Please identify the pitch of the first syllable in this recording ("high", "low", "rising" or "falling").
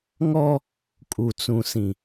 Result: high